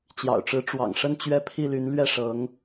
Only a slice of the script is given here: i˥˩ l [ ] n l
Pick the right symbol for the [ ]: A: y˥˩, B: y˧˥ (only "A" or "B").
B